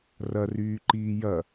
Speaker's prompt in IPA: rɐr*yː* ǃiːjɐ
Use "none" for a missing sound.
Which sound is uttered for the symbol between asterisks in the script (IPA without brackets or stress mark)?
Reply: yː